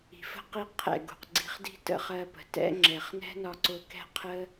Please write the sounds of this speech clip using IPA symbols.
i̤˨fə̤˦ qi˧ qʰɛ̰˨ɡṳ˨qɡ͡ǀi̤˧χdi̤˦ tə̰˦χɜ˧pə̤˨ tɛ̰˦ ŋ͡ǁɛ˨χnɛ̤˦nɒ˧ ǀʊ˧kɛ̤˦qʰə˦

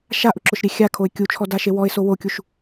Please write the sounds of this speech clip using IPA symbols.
ʃaʔʊǁʊʃɾʲe xʲakʰoɪ̯ kʲut͡ʃʰɔdaʃe wɔɪ̯so wokʲuʃ

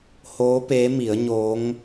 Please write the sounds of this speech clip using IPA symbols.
hoː˧˥peː˧˥ mi˩˧ə̯ ɲo˧˥ŋ

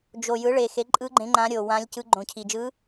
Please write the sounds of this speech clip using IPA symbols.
d͡ʒo˨˩jɯ˩˥ɭe˨˩xe˩˥ ǃʼɯ˧˥ ɡ͡ǃẽ˧˥ŋ͡ǃã˧˥ɾʲo˨˩ wã˧˥lʲcɯ˧˥ ɡ͡ǃõ˨˩cʰi˨˩d͡ʒɯ˧˥

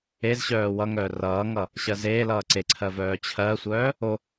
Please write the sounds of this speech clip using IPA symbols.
ez ɕœːwʌŋœː rʌːŋʌ | ɕɜzeːlʌː ǀeǀʰɜ vœːt͡ɕʰɜsʷœː | o

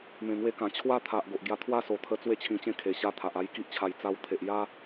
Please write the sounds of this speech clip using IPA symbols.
mẽ˨˩ŋwe˧kã˨˩ t͡ɕʰwa˦t̪ʰa˨ʔ ɡo˨ʔɡja˧ t̪ʰwa˥˧so˨˩t̪ʰə˧ t͡swe˥˧t͡ɕʰĩ˧t͡ɕẽ˥˧ kʰe˨˩ɕa˧ t̪ʰa˨ʔa˧jki˦ʔt͡ɕʰa˧j t͡sa˧wt̪ʰe˨ʔja˦

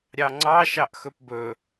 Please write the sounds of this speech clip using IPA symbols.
ɾʲɑŋ͡ǀɑ ʃɑʔxɵpbɵ

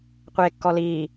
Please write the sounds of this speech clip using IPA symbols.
qʷeːkːɔliː

